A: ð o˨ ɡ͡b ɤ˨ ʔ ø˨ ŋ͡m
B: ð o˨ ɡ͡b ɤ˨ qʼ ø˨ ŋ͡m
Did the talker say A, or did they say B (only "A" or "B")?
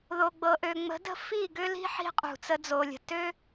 A